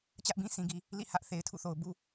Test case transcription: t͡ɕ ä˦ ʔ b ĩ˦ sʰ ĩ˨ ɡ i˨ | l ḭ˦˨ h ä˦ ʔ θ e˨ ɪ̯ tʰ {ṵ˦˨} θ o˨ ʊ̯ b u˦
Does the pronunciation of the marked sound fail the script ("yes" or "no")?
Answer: no